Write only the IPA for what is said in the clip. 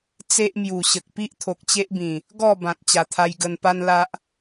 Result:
t͡se˦ʔmju˨˩ɕə˨k̚ pi˦ʔt̪ʰo˨k̚t͡ɕe˦ʔbĩ˨˩ | ɡɔ˥˧ bã˨t̚ t͡ɕa˨˩t̪ʰa˧j ɡə˧npa˦nla˦ʔ

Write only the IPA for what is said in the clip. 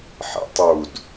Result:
ħḛtˤud

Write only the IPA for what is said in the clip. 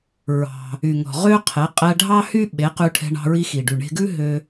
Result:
ɹɑ̤˩ | y˩ ŋɔ̤˩ʁø˥qʰɛ˩˥ qʼæ˧ɖʱɑ˥hy˥ ɓe˩˥qʉ˧ ʈʰɛ̤˧ɳɑ̤˧ɹi˧xi˩ ɖy˩ɳe̤˧ɡʉ˥ ɦø˧

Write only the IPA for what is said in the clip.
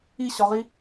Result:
iɕɒʁi

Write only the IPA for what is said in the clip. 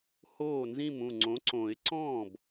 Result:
hoː˥˩nzĩ˥˩mũ˥˩ ŋ͡ǀõ˩˥ǀõ˨˩˦ɪ̯ ǀɔ̃ː˥˩b

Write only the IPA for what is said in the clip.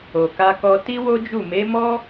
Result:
o˨ka˧kɔ˧ ti˦wo˦d͡ʒu˦˨ me˨˦mɔ˦

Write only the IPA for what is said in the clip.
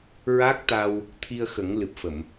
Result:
ɹa˦˥k̚t̪a˧w | t̪ʰi˧ə̯xə˨˩˦ŋlɨ˨˩p̚fə˨˩˨m

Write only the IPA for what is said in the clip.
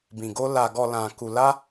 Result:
bĩ˨ɡo˧ la˨ɡɔ˨ lã˨ku˨la˧

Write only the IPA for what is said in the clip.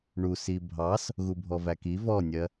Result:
ɳusi bʱɑs | ɣubʱɔvæki vɔnʲɜ

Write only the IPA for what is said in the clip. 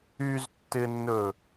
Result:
yztːɪnːɵ

